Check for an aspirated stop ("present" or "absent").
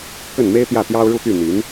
absent